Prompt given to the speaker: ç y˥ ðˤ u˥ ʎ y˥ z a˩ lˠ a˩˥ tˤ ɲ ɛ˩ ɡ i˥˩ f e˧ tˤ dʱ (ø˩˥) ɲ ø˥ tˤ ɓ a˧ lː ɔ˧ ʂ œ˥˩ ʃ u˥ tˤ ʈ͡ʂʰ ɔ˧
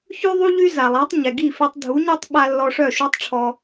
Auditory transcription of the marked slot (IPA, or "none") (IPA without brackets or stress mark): u˩˥